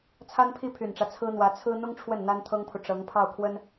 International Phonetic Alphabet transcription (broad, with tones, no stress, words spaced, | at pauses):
t͡sʰa˥npʰi˥˩pʰy˨˩nʈ͡ʂä˦ t͡sʰɹ̩˥n̪wä˧˥ t͡sʰɹ̩˥ n̪ʊ˥ŋ ʈ͡ʂʰwə˥˩n n̪a˥nt̪ʰɤ˥ŋpʰu˨ ʈ͡ʂɤ˧˥ŋpʰɑ˥˩ʊ̯kʰwə˥n